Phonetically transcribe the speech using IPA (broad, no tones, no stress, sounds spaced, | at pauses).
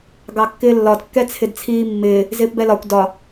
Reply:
ɡ ɑ kː ɪː lː ɒ d kː ɛ t͡sʰ ɪ d t͡sʰ iː mː ɪː | z ɪː p b ɛ l ɒ kʷ d ɒ